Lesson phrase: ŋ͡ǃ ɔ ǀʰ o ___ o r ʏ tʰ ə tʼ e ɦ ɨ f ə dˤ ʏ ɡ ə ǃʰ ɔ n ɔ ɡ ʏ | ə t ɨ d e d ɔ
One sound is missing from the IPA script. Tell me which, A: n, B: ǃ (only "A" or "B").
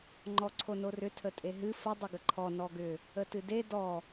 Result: A